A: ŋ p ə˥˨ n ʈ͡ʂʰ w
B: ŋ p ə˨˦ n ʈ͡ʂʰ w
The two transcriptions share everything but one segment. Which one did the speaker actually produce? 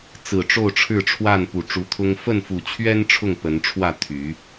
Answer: B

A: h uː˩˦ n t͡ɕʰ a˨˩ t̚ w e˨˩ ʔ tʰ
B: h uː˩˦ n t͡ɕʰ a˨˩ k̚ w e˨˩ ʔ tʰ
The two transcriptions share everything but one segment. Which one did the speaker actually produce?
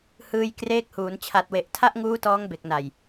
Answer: A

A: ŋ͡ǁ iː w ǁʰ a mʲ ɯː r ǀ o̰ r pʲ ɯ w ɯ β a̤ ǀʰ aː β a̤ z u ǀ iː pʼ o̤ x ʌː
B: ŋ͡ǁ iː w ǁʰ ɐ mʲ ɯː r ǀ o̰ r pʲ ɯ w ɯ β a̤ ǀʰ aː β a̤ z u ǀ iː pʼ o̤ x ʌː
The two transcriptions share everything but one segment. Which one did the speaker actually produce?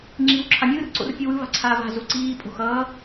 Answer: A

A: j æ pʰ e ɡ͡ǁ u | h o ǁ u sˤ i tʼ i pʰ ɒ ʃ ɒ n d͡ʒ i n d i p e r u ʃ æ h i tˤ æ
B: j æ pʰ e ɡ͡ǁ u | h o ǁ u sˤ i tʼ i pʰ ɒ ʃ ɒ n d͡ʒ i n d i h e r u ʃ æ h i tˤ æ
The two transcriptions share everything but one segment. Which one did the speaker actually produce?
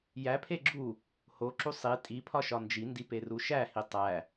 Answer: A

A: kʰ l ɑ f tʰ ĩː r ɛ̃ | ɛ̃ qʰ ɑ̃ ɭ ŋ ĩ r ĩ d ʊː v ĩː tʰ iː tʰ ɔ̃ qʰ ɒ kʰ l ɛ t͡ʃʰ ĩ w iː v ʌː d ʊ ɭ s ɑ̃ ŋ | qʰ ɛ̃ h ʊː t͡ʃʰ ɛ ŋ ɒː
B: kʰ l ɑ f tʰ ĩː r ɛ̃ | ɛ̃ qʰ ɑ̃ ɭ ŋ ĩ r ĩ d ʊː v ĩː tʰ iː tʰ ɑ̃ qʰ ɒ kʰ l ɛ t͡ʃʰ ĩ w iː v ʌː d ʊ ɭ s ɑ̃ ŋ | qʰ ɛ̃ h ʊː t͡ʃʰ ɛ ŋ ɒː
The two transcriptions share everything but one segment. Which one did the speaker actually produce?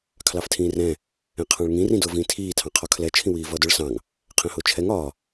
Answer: B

